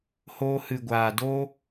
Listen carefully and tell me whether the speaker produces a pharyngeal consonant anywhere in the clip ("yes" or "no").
no